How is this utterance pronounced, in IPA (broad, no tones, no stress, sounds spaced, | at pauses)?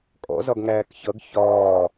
kʼ ɔ̰ z ɒ ɡ ŋ æː k ç ʌ ɡ ç ɒː